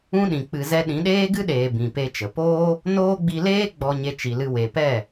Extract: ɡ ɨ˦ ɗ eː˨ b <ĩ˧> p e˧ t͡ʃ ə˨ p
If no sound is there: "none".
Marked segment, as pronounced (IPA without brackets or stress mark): ĩ˨